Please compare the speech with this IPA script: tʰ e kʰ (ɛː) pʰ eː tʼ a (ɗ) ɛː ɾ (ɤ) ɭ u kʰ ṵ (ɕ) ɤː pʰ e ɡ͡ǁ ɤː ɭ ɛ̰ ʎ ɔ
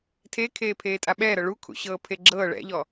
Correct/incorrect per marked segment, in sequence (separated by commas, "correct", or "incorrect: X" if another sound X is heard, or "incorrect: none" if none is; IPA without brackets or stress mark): incorrect: eː, incorrect: ɓ, correct, correct